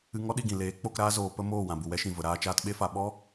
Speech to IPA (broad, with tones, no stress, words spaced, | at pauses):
ɨ˧ŋɔ˦ɗi˦˨ɡĩ˨ leː˨˦k͡po˧k ɾaː˦zoː˧pə˦moː˦˨ wã˨bu˨wɛ˧ʃĩ˨ və˧ɾaː˦t͡ʃaː˦t ɓe˦fa˧ ɓɔ˦